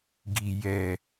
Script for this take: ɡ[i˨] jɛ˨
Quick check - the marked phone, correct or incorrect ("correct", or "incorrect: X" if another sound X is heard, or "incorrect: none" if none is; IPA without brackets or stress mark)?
correct